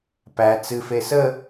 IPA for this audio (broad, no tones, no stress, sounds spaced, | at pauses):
p æ t͡s ɨ f e s ə